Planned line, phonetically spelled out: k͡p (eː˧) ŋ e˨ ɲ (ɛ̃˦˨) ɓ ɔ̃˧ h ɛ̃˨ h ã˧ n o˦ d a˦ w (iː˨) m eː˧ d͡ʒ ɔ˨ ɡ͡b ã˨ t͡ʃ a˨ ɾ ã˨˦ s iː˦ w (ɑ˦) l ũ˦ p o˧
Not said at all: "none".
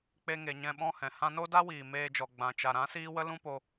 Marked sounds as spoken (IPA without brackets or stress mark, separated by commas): e˧, ɛ̃˧, iː˨, ə˦